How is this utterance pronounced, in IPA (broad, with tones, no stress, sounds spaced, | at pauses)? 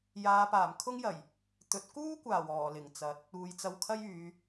j aː˨˧ p aː˨˩ m kʰ ʊ˥ ŋ j ɐ˨˩ j | t̪ ɵ˨˥ t̚ k uː˥ kʷ aː˨˩ w ɔː˨˩ l ɪ˨˩ ŋ t͡s ɐ˨˥ t̚ | uː˨ j t͡s ɐ˧ w kʰ ɐ˥ j yː˨˧